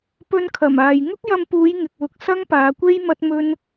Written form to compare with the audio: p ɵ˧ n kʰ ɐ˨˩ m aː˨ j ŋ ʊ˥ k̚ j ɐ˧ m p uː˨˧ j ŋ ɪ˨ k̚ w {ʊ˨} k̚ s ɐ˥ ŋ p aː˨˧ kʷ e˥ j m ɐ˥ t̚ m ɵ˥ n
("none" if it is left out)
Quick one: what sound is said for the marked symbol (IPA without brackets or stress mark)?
ʊ˨